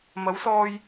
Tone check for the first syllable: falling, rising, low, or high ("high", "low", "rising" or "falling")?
rising